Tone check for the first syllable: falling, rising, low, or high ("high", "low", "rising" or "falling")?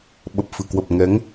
low